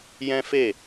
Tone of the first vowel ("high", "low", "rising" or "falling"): high